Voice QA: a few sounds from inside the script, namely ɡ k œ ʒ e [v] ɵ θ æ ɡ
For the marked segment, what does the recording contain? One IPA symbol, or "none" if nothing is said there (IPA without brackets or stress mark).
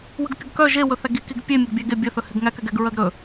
w